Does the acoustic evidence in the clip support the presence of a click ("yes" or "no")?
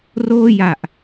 no